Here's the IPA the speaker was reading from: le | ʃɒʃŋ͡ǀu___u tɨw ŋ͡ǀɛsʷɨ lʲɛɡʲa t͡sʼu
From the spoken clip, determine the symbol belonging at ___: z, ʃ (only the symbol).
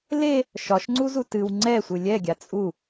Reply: z